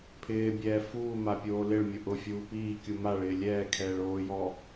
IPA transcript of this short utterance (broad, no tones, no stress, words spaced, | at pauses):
pʰɪː bʲɛːfuːma pʲoːlɪɭmʲʊ ʔʊfʲuː piː kʲumaɭɪː lʲɛːkʰɛːɭ oːjɔ